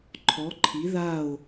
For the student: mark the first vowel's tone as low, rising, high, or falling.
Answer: rising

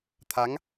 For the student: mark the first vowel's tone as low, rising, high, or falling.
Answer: rising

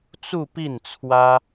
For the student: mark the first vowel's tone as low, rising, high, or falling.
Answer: falling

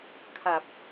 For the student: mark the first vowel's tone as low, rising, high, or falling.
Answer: low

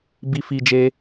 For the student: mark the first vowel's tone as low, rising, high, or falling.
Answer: high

